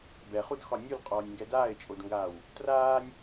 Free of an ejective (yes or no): no